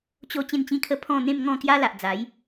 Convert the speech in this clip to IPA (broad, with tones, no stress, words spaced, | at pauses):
t͡ɕo˧ t͡ɕẽ˥˧nt͡ɕĩ˥˧kʰə˥˧ pʰɔ̃˥˧ n̪ẽ˥˧mŋɔ̃˥˧ kja˦la˨ʔd͡za˨˦j